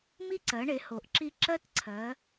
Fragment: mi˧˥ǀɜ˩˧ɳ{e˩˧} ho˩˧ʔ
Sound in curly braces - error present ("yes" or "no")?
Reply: no